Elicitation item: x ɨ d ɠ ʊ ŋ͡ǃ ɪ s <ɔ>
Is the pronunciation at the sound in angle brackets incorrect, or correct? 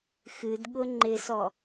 correct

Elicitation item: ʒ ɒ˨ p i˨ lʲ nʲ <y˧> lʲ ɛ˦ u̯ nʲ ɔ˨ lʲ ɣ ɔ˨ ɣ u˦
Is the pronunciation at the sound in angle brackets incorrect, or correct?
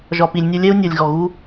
incorrect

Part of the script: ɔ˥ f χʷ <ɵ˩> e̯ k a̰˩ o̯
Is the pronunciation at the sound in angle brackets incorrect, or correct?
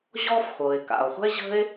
incorrect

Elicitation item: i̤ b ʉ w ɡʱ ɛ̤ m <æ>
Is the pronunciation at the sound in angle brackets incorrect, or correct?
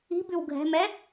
incorrect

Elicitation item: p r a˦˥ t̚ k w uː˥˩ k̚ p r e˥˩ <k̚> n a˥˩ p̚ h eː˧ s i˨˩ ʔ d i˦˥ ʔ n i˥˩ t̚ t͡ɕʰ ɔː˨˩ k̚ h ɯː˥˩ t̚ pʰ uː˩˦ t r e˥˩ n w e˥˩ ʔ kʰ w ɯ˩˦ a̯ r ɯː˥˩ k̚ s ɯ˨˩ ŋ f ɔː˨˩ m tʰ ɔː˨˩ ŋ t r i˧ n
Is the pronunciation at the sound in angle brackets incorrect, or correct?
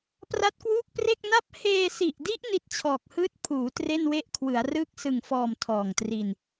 correct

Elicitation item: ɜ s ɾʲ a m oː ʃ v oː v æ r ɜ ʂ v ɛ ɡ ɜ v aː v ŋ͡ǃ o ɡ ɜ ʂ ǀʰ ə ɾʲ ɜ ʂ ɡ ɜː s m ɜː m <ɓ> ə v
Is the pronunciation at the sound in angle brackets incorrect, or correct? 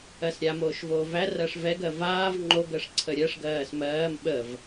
correct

